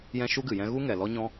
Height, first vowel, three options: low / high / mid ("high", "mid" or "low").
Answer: mid